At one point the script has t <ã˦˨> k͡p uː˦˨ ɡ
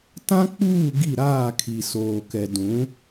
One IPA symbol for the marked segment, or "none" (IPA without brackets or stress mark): ã˦